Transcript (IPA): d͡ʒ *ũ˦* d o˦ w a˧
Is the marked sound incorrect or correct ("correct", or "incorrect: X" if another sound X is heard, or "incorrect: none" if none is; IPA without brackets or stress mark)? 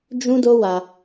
correct